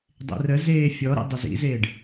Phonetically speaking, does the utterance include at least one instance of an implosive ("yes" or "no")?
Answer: no